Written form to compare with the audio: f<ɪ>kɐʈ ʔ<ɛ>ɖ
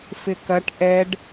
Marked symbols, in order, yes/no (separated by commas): yes, yes